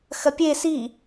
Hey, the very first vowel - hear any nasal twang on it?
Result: no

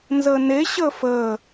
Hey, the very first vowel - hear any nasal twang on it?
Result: no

